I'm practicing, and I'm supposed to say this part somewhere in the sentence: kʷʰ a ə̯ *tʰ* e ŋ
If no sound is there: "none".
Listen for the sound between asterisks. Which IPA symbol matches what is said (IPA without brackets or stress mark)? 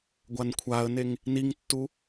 n